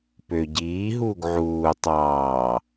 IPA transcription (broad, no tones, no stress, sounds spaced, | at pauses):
p ø ɟ iː ɦ uː ɡ ʕ uː tˤ ɑː